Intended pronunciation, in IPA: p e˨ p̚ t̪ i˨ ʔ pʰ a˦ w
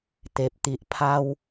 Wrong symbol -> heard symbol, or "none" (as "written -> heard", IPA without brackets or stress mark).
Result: p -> t̪